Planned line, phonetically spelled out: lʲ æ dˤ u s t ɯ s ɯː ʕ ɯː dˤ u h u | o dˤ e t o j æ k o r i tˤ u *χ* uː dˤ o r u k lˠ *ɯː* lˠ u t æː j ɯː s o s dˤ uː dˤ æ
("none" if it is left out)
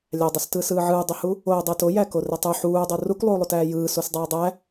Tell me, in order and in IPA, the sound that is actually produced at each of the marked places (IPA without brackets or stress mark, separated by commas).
ħ, uː